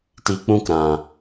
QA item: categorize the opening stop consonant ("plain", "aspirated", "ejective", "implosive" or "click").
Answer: plain